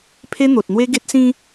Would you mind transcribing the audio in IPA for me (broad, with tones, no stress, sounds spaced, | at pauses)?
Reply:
pʰ e˦ n̪ o˨ t̚ n̪ w e˦ ɡ e˦ t̚ s ĩ˦